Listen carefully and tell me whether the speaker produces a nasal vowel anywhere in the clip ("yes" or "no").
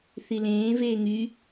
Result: yes